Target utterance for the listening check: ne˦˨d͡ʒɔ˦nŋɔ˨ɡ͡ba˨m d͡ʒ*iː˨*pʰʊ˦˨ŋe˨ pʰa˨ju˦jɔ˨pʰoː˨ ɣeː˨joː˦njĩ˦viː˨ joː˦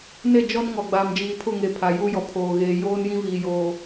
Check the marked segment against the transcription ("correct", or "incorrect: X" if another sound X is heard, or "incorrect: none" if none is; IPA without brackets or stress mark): correct